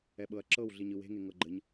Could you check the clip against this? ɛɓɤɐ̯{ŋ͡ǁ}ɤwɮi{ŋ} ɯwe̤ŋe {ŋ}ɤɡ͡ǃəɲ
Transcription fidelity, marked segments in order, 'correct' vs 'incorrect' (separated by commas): incorrect, incorrect, correct